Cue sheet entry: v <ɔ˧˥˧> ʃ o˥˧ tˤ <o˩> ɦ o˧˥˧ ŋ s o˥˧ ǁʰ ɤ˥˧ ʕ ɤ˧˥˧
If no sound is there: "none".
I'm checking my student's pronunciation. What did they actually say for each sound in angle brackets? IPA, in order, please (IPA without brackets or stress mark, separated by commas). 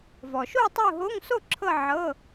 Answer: ɔ˩, o˥˧